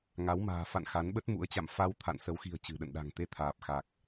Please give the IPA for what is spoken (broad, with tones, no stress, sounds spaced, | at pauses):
ŋ a˨˦ w m a̤ː˨˩ f a̰˧˨ n x a˨˦ n ɓ ə˦˥ t̚ m ṵ˧˥ ə̯ t͡ɕ a̰˧˨ m f a˧ w t̪ʰ a̰˧˨ n s ə˨˦ w x i̤˨˩ ə̯ t͡ɕ ɨ̤˨˩ ɗ ə̰˧˨ n ɗ a̤˨˩ ŋ t̪ e˧ t̪ʰ aː˨˩ p̚ x a˨˩ k̚